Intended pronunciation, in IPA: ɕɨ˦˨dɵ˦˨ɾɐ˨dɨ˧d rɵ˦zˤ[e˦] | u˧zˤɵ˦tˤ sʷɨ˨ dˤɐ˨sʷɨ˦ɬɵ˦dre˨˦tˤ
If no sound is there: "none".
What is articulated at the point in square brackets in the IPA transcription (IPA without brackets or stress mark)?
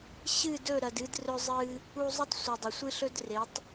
ɨ˦